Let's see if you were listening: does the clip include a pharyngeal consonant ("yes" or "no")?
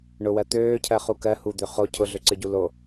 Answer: no